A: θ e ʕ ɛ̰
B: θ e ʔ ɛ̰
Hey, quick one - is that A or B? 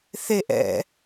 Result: B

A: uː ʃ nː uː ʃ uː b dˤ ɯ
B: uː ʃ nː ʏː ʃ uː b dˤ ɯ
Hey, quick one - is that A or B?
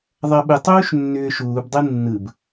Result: B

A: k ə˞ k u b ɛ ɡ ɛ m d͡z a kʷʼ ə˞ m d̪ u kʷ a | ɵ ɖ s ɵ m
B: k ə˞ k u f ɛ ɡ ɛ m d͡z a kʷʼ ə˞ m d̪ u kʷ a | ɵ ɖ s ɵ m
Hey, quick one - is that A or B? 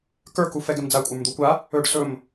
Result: B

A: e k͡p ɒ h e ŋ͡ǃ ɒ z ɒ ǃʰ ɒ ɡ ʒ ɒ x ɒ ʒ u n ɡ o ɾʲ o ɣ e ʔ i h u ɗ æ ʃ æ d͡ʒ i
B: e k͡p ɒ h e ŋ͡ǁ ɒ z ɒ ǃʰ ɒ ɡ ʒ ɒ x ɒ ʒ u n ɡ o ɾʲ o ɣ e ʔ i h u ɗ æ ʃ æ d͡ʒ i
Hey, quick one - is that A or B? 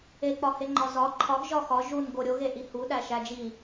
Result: A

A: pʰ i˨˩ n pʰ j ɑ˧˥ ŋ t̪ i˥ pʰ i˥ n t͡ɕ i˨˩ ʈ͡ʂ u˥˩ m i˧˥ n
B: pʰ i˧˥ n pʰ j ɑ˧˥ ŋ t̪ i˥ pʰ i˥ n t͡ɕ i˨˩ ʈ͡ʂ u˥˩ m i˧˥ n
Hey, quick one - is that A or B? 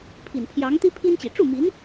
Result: A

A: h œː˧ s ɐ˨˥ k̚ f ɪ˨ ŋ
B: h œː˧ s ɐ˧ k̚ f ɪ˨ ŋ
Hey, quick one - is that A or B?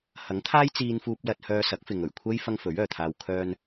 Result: A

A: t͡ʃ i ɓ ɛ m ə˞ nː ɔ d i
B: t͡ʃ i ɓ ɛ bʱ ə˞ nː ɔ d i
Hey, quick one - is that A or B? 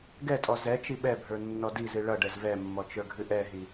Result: B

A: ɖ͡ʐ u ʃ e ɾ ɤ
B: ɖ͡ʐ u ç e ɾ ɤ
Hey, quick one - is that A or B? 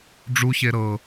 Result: B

